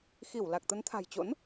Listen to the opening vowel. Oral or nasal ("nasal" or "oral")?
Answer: oral